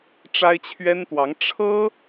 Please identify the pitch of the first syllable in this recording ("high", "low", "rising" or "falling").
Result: high